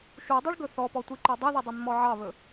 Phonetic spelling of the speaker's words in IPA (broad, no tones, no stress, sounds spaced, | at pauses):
ʃ u dˤ e ɭ ɡ ɵ θ ɔ p ɔ tʷ i ǃ œ dˤ i ð i dˤ e mː ɔ ʕ ɑ β ɵ